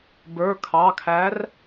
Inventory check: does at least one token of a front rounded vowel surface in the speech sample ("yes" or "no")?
no